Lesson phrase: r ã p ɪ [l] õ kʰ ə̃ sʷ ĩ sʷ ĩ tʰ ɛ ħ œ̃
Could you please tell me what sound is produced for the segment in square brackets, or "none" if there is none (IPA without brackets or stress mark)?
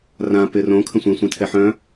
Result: r